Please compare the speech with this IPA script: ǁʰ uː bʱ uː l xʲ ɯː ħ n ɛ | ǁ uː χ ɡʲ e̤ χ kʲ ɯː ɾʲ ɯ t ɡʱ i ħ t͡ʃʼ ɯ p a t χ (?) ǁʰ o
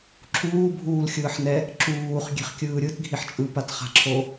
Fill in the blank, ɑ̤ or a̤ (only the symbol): a̤